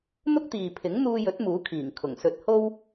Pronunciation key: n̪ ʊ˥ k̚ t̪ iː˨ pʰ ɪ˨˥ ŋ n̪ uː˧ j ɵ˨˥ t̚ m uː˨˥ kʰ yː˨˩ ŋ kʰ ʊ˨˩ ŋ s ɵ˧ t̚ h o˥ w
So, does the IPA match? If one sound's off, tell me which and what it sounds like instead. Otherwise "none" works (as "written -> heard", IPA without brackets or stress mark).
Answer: yː˨˩ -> iː˨˩